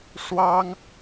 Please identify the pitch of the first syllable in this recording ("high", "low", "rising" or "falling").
high